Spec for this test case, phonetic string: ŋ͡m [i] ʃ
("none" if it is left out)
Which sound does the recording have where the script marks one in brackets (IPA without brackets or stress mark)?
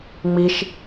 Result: i